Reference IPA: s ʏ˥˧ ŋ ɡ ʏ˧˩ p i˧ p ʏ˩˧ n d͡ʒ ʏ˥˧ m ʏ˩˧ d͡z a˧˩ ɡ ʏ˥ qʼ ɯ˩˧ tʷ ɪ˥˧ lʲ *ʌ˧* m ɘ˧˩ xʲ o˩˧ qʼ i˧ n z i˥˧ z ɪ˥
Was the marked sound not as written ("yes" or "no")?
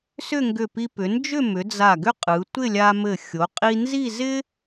yes